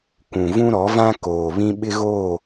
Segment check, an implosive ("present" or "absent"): present